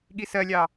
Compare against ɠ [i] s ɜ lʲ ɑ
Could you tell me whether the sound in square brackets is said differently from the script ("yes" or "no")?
no